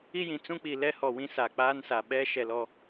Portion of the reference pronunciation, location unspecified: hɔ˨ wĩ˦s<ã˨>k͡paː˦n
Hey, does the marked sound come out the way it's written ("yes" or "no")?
no